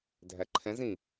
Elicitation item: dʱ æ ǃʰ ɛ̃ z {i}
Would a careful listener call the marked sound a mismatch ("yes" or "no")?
yes